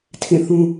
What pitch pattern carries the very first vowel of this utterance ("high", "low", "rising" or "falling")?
falling